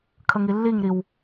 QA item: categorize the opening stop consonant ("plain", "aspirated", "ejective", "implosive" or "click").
aspirated